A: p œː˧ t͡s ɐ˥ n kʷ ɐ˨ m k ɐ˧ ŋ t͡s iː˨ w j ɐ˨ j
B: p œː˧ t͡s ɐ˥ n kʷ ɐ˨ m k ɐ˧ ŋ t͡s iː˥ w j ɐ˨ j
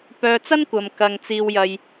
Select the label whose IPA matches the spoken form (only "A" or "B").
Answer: A